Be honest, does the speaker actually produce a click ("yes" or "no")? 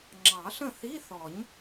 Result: yes